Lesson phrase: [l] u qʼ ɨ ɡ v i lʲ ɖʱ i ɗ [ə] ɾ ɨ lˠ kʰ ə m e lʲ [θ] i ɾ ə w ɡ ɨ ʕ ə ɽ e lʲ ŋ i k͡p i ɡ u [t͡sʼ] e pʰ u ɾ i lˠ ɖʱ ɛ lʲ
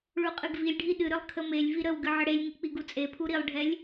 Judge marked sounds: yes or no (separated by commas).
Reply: no, no, no, yes